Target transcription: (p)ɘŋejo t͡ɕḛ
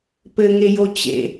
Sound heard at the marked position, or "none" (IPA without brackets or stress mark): p